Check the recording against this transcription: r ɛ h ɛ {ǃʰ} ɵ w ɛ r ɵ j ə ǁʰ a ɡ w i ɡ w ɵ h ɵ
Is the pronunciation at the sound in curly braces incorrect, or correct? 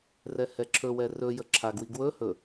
incorrect: ǁʰ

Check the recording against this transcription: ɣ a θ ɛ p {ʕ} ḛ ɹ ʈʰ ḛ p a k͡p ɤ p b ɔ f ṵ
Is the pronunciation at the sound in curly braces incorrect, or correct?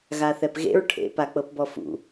incorrect: ɣ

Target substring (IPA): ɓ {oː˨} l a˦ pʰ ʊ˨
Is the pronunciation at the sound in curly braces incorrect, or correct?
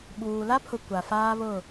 incorrect: uː˨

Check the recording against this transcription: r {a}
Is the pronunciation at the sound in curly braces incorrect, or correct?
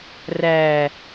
incorrect: æ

